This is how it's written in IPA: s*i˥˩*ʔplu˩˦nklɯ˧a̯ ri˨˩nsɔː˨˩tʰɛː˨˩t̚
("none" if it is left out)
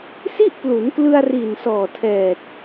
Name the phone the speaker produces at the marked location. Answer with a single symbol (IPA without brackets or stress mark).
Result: i˥˩